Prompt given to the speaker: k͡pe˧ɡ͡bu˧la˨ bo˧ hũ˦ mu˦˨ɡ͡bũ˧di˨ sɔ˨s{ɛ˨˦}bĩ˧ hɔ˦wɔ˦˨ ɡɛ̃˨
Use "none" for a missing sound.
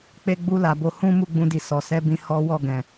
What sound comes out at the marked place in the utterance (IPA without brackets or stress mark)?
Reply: ɛ˧